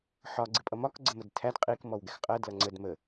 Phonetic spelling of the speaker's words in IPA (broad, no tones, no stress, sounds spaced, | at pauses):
ħ ɒ ɡ͡ǀ ɪ pʼ ʌ m ɒ k ɡ͡ǀ ə m ə d tʰ æ d qʼ i k m ɔ w ɡ ɛ x qʼ ɜ d l ʌ ŋ͡ǀ ə d m ə